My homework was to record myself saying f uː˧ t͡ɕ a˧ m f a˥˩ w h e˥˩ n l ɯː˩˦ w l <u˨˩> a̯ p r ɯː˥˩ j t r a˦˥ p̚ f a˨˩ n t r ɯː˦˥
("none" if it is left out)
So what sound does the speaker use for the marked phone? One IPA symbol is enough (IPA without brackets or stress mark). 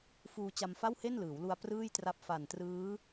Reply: u˧